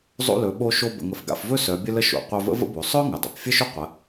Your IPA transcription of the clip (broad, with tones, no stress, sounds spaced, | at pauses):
zˤ o̰˧ l ɵ˩˧ ɓ o˧ ʃ o˧ b ə̰˩˧ ŋ ə˩ f ɡ a̰˧ f v ɵ˥ s œ˩˧ bʲ ə˧ l ə˧ ʃ o̰˩˧ qʷ œ˧ v ə̰˧˥ v ə̰˥ b o˩˧ sˤ œ˥ ŋ ə˩ dˤ o̰˩ p fʲ ə˥ ʃ ɵ˥ qʷ ə˩˧